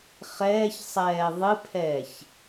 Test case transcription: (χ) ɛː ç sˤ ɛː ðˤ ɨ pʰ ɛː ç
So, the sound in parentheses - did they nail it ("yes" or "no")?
yes